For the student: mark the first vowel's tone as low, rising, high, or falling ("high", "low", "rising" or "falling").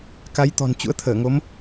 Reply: rising